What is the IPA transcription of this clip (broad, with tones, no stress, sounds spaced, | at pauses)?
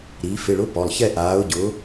ɾ i˩˧ f ɪ˩˧˩ ɭ ʊ˨˥ p ɔ˩˧˩ lˠ ç ɛ˥˧ ʔ aː˨˥ ʊ̯ ɟ ʊː˨˥